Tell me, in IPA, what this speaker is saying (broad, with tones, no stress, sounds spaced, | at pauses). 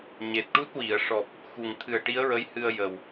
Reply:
ɲ e˨˩ t̚ ʈ u˦˥ t̚ w i˨˩˨ ə̯ ʂ ɔ˨˩ p̚ | x u˨˩ ŋ t̪ʰ ɨ˨˩ ə̯ ʈ i˧˥ ə̯ ɹ ə˧˥ j h ɨ˧ ə̯ j ə˨˩ w